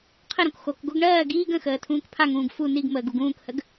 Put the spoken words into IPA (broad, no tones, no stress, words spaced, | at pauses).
qʰəɾõk xok ɡoɡɳɜː ɡiːɡ ə̃xəː tʰũːkpʰaŋũːɡ fu niɡməːɡ uɡũːkhəɡ